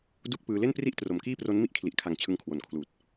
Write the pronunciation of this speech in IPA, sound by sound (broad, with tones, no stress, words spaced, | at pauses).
du˥˩k̚pɯː˧ le˥˩npri˥˩ʔ tro˨˩mkiː˥˩pro˦˥n mi˥˩ʔkʰli˨˩ʔkʰa˨˩ŋ t͡ɕʰɯ˧ŋkʰwo˨˩nkʰluː˨˩t̚